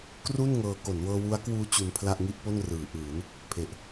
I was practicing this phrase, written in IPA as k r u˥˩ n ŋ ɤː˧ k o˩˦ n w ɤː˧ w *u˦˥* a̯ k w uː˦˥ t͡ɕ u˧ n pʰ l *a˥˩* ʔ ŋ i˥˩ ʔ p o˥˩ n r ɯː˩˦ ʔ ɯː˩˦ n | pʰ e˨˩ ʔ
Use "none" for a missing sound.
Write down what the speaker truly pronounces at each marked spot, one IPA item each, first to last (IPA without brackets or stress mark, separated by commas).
u˦˥, a˥˩